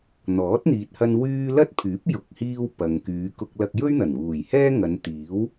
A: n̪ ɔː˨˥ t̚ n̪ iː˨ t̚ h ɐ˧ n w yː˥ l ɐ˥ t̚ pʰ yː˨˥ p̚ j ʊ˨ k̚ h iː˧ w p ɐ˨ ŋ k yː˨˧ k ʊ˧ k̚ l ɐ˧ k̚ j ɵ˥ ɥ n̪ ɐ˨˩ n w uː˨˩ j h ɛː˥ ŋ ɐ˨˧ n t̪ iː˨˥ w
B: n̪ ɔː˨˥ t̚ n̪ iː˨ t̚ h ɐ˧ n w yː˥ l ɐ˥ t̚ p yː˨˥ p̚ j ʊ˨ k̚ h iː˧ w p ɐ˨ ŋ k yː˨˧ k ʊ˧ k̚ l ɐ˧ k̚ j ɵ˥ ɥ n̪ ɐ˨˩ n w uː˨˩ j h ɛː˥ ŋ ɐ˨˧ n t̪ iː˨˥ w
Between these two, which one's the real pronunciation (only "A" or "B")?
A